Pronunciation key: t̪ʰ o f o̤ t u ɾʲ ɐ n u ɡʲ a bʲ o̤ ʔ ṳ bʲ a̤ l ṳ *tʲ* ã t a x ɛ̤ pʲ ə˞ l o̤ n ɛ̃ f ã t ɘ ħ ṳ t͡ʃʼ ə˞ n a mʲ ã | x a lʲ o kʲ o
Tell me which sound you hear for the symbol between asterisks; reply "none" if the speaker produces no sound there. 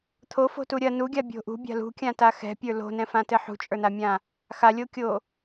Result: kʲ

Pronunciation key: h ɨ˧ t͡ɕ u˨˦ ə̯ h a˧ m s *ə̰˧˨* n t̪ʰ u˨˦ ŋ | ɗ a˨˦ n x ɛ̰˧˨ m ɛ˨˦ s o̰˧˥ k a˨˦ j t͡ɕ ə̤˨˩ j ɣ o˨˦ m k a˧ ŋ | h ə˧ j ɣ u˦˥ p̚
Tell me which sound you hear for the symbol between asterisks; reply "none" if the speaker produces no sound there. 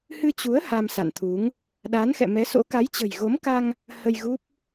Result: a̰˧˨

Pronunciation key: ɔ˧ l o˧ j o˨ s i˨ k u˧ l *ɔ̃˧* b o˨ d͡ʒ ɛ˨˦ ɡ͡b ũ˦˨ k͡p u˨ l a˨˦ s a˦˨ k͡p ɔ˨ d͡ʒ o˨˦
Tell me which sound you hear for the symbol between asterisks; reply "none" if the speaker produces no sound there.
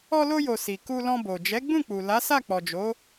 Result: ɔ̃˧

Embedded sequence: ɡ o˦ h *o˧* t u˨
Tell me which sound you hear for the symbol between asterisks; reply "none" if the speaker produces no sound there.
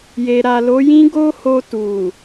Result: o˧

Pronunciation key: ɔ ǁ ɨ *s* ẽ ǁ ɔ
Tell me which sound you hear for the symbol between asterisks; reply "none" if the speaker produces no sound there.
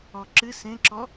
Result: s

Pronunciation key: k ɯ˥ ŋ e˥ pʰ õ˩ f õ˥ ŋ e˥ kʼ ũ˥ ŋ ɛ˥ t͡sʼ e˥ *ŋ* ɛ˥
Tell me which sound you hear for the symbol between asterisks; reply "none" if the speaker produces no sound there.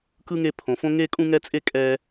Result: kʼ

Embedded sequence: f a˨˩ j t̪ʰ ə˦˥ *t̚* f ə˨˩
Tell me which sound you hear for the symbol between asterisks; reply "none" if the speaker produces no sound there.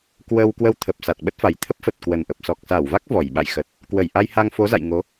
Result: p̚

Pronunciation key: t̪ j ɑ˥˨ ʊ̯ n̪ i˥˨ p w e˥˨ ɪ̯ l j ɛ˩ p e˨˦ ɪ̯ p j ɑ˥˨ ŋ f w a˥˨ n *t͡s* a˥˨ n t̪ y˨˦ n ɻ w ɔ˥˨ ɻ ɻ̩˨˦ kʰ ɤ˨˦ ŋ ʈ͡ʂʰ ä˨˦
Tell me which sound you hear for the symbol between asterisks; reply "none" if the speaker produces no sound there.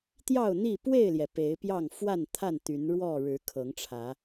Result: t̪ʰ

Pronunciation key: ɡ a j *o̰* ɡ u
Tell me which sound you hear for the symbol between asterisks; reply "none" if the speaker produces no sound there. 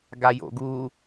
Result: o̰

